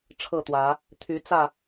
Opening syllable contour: falling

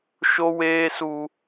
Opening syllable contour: high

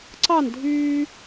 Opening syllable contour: falling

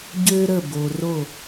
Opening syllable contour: high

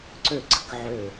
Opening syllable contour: falling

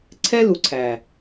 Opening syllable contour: high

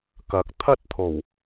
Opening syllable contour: rising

